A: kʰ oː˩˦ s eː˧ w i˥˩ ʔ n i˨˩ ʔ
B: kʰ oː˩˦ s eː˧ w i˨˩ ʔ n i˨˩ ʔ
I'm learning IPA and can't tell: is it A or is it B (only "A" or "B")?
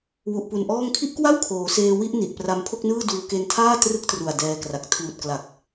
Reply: A